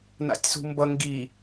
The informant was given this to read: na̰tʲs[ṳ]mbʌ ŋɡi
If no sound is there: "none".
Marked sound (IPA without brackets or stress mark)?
ṳ